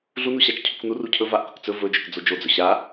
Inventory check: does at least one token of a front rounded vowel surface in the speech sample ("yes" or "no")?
no